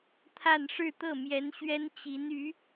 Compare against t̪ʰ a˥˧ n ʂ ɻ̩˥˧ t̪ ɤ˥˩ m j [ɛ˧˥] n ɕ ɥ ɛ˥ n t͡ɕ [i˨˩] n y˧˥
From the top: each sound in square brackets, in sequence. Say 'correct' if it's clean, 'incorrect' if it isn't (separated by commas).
correct, incorrect